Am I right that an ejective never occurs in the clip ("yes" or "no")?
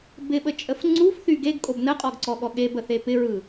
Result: no